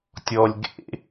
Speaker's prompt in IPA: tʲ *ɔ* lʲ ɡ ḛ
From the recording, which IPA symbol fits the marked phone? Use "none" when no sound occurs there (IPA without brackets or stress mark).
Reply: ɔ